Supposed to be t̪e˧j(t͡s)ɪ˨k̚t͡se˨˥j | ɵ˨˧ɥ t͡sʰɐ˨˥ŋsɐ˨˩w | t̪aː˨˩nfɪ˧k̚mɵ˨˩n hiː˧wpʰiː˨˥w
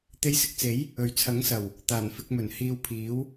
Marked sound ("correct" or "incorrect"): incorrect